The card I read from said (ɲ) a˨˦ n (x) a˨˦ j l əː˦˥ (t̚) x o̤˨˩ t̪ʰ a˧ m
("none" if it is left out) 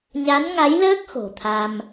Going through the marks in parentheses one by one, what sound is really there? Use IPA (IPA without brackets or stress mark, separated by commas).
ɲ, ŋ, k̚